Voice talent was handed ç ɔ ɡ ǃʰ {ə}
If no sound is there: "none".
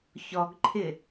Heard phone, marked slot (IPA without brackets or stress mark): ɪ